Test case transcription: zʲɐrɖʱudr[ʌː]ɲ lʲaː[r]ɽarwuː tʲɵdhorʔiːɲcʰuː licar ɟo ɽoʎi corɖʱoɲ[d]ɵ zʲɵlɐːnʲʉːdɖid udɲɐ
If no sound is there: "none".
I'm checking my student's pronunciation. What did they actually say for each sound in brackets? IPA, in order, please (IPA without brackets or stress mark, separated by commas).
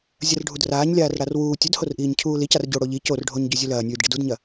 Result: aː, r, ɟ